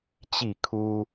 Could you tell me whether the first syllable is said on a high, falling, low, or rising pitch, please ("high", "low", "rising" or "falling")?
falling